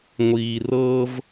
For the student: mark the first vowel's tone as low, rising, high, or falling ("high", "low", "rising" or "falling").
low